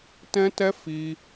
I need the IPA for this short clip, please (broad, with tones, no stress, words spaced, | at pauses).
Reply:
tɛ̃˦tɛ˦ fi˦